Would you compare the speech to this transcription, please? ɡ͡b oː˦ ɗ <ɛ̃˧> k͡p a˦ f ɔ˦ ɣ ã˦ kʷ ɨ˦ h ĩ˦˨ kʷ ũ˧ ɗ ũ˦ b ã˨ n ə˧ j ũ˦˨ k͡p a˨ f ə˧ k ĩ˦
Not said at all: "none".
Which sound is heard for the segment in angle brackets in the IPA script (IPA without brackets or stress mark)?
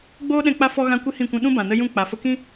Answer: ɛ̃˧